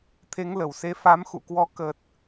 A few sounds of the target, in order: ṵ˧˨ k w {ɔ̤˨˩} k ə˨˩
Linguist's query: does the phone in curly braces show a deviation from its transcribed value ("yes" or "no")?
yes